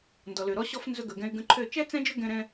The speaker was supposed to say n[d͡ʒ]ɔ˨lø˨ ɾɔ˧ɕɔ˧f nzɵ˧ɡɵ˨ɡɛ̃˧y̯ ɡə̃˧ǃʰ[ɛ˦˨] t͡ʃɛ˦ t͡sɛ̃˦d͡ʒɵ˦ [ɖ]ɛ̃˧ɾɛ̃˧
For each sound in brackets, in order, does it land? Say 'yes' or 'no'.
no, no, no

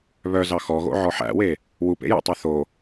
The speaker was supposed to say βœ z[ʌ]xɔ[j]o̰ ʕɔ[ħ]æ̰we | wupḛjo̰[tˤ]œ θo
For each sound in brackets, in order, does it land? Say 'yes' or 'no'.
no, no, yes, yes

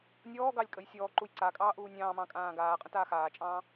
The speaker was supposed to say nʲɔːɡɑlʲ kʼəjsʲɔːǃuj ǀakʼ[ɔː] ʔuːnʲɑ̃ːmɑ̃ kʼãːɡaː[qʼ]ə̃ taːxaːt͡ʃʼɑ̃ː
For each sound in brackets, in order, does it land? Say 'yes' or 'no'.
no, yes

